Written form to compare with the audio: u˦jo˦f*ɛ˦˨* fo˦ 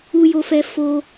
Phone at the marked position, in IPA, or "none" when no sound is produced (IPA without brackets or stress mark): ɛ˦